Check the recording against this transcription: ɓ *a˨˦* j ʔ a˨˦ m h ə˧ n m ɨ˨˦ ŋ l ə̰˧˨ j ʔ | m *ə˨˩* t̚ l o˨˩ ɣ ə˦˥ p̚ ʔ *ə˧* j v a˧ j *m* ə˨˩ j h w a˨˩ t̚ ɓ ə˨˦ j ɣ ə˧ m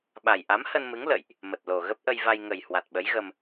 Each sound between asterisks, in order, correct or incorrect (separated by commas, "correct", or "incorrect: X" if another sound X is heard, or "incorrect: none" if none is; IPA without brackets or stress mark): incorrect: a˨˩, correct, correct, incorrect: ŋ